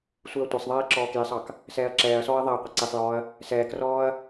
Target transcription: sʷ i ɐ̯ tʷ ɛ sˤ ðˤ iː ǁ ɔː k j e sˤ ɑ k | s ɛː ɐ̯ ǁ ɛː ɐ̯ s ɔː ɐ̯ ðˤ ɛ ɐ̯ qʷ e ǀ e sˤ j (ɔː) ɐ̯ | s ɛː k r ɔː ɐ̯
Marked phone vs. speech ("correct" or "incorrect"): correct